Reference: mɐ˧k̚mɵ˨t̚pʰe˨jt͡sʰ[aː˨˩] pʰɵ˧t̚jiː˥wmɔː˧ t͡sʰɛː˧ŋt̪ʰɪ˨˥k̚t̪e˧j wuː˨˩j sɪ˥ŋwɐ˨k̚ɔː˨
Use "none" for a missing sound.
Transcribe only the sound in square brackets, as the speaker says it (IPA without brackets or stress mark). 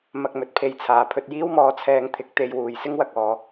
aː˨˩